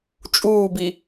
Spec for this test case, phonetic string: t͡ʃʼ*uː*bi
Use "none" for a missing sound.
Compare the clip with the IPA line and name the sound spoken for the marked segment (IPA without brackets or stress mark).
uː